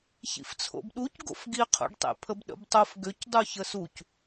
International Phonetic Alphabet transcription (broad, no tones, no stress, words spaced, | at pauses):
çḭft͡sʰo̰bɗuc ɡo̰fɡiqʰo̰ɖ tˤḛpʰəbɗə̰btˤof ɡʏcdˤu çəsuc